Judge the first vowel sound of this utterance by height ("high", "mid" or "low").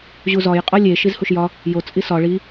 high